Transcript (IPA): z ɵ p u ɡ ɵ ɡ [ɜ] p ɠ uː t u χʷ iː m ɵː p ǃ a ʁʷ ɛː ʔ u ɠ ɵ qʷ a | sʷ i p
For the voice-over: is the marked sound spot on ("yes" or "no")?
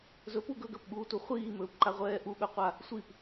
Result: yes